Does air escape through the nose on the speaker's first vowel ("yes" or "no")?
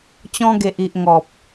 yes